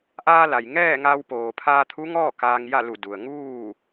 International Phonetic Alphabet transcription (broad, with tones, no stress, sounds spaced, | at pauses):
ʔ aː˧ l a˩ j ŋ ɛː˥˨ ŋ a˧ w p oː˩ pʰ aː˧ t̪ʰ u˧˥ ŋ ɔː˥˨ k aː˧ ŋ j a˥˨ l u˧˩ d u˩ ə̯ ŋ uː˥˨